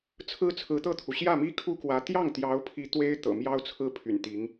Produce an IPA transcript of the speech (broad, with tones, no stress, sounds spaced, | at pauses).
t͡sʰ ɹ̩˥ t͡sʰ ɹ̩˧˥ t̪ ɤ˥˩ t̪ʰ u˩ ɕ j ä˥˩ m i˥ kʰ u˥ k w ä˧˥ t̪ j ɑ˥˩ ŋ t̪ j ɑ˧˥ ʊ̯ pʰ i˧˥ t̪ w e˥ ɪ̯ t̪ ɤ̰˨˩ m j ɑ˥ ʊ̯ t͡sʰ ɹ̩˥ pʰ y̰˨˩ n t̪ i˧˥ ŋ